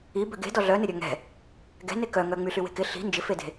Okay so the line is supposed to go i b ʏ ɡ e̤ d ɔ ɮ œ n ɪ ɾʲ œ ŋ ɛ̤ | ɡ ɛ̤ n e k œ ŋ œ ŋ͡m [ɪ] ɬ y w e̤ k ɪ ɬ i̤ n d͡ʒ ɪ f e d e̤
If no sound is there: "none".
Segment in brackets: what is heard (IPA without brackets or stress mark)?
y